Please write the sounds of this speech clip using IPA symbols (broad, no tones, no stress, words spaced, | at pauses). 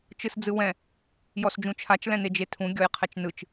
t͡ʃɯsd͡zɯwɛ̃ | jɔsd͡ʒũt͡ʃʰat͡ʃ lɛ̃ned͡ʒetʰũ ɡʲɔjqʰɛt͡ʃnɯt͡ʃ